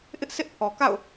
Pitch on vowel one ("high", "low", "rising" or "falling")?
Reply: high